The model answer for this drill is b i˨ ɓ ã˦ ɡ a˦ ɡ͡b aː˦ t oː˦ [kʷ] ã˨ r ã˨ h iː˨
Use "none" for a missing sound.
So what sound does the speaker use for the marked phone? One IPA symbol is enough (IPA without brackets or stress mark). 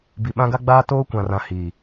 kʷ